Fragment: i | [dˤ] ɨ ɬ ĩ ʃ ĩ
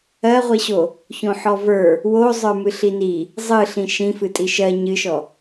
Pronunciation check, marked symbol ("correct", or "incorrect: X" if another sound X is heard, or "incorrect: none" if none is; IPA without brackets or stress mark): incorrect: zˤ